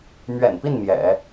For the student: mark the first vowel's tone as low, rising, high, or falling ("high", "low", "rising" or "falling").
low